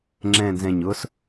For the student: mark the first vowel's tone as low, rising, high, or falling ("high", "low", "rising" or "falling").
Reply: low